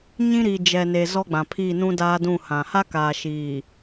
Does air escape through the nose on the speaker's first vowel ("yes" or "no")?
yes